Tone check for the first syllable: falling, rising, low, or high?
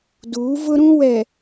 rising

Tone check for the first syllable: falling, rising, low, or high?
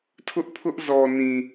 high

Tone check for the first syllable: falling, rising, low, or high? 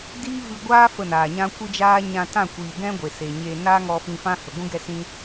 high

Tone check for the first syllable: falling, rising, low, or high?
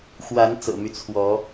rising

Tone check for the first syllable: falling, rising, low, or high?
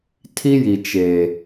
high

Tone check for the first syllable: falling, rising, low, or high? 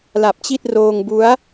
low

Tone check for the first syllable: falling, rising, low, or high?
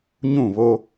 falling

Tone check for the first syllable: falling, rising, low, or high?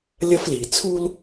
high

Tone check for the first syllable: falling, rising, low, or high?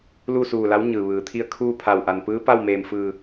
falling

